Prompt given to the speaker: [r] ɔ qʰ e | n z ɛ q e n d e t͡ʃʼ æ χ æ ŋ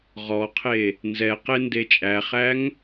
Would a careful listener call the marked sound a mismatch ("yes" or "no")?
yes